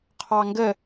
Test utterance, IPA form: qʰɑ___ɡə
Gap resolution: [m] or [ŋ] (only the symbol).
ŋ